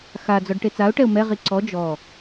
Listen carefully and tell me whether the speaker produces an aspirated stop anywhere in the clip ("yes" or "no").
no